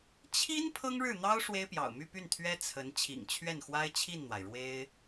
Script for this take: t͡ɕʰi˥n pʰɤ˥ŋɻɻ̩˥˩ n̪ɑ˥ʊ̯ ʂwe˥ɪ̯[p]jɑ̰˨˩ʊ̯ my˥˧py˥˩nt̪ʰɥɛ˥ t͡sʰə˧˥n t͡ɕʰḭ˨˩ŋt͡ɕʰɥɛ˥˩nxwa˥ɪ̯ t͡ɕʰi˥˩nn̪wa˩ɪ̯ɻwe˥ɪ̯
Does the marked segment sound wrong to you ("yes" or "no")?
no